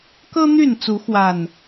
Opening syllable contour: high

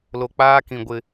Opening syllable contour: low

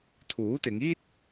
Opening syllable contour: rising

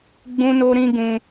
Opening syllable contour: high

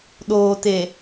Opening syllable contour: low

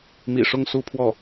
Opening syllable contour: low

